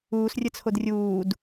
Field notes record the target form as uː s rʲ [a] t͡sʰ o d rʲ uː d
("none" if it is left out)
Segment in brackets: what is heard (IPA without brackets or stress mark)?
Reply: ə